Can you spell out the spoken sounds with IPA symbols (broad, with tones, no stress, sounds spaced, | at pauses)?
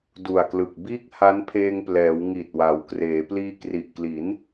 d u˨˩ a̯ k l ɯ˨˩ k̚ b iː˥˩ k̚ h a˦˥ n pʰ eː˧ ŋ p l ɛː˩˦ w ŋ i˨˩ t̚ w a˩˦ w k r eː˩˦ p l iː˧ k r i˨˩ ʔ k l i˩˦ n